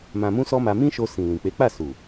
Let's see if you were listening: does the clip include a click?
no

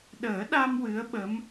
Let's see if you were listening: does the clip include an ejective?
no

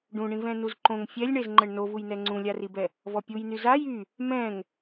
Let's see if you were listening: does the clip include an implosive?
no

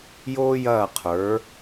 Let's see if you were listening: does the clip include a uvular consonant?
yes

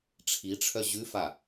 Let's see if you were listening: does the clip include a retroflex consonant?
yes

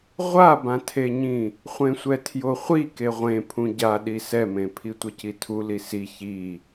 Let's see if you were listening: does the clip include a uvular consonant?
yes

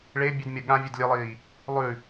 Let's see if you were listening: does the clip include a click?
no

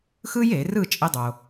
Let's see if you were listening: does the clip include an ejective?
yes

